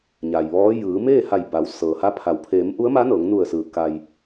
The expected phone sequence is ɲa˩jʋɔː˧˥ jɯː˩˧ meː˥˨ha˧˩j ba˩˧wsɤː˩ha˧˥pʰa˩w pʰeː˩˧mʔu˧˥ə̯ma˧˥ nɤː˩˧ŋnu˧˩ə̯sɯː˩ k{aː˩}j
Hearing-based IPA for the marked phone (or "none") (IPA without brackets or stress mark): a˩